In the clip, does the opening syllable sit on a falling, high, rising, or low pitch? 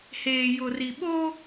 low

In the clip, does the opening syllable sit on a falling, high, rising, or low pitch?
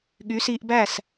rising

